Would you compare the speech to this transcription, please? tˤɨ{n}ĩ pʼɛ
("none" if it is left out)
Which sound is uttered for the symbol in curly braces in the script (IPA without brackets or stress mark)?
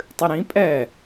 ɾ